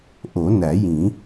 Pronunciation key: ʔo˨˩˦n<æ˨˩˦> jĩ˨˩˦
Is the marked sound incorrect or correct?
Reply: correct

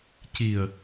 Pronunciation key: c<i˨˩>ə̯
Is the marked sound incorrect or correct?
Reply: correct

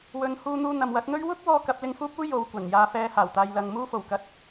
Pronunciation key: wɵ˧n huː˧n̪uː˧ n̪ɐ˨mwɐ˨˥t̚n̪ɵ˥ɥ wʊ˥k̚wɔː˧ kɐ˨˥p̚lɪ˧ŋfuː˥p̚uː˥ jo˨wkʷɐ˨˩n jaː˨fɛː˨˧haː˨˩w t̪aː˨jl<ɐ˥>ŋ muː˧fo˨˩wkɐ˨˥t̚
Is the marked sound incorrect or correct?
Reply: incorrect: ɐ˨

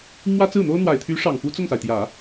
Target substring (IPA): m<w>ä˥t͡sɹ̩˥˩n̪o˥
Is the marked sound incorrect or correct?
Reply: correct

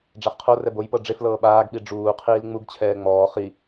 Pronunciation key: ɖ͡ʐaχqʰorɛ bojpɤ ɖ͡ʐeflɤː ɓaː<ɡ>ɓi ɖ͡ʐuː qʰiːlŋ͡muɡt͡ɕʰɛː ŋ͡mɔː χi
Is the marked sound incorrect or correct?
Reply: correct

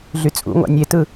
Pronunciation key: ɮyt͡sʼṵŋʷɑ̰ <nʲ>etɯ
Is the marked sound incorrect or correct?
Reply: correct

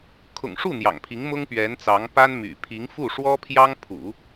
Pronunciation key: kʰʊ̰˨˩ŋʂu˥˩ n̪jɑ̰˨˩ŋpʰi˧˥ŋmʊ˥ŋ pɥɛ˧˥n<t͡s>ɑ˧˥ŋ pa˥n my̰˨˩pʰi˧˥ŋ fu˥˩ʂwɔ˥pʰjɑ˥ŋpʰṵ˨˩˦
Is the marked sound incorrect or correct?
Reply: correct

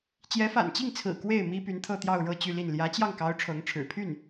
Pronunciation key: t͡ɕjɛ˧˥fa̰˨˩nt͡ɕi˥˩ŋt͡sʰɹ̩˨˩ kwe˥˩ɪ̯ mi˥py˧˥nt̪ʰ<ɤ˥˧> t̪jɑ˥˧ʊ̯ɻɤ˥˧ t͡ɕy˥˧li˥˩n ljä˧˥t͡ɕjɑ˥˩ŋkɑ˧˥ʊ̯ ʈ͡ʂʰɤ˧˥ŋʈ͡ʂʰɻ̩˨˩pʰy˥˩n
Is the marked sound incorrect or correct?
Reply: correct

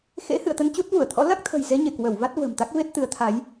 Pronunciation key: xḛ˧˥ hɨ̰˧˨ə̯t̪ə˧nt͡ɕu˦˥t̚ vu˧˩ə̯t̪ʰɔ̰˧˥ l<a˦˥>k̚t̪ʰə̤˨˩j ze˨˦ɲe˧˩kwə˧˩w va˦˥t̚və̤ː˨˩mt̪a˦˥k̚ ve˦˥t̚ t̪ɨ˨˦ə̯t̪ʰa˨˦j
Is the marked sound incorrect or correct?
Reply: correct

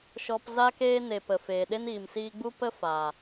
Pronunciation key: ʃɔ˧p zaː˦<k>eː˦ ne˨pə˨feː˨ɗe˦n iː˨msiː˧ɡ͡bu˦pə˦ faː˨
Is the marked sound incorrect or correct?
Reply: correct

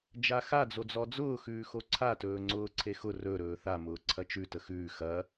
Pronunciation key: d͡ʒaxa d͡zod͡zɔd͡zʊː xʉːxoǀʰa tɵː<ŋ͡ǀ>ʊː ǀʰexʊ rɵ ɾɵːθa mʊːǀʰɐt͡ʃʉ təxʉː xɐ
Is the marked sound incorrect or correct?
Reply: correct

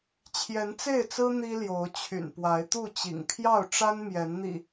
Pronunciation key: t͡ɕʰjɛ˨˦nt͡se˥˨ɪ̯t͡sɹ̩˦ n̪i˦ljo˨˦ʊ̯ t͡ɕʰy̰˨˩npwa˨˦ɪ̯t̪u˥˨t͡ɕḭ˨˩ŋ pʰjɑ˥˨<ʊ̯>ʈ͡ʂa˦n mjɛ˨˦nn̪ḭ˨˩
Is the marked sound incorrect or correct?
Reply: correct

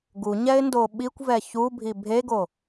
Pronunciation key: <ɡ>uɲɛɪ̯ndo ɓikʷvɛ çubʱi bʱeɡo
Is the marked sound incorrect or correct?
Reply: correct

